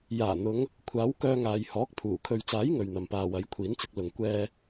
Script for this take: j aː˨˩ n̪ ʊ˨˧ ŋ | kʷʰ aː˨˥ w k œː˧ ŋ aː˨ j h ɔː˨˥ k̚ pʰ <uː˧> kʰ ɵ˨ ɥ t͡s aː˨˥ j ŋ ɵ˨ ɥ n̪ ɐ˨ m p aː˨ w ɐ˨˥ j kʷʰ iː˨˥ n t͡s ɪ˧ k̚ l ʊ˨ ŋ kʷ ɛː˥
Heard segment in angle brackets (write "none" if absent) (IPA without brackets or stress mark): uː˨˩